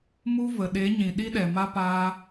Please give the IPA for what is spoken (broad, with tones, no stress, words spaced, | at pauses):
mu˦ və˨ɗe˨˦ɲĩ˨ ɗi˦ɗɛ˨ma˦ paː˦